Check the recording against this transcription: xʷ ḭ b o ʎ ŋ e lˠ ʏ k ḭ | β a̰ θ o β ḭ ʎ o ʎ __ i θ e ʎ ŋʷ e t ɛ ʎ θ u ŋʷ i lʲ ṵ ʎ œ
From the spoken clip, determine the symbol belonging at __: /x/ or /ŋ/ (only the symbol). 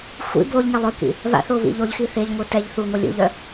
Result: x